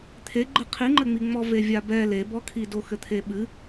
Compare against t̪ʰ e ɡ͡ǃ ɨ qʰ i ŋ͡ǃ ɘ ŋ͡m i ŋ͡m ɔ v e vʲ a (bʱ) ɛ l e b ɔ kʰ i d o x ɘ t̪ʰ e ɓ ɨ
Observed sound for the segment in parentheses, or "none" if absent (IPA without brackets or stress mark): b